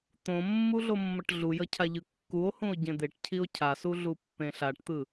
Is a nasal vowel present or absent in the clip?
present